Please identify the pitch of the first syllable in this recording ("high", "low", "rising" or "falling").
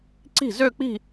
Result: falling